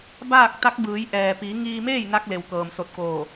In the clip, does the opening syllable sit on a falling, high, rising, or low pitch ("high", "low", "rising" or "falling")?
falling